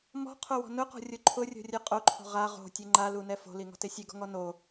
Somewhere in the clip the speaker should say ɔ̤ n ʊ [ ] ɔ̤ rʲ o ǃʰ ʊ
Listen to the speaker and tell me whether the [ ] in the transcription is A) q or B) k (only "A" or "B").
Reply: A